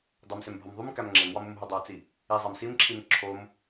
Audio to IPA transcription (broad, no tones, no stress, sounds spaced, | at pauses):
dˤ u m s e m bʱ ɒ m ðˤ u m k æ m ŋ͡ǁ e m w ɒ m u m ɦ o dˤ o t͡s i | i zˤ æ m s i m ǁʰ i m ǁʰ o m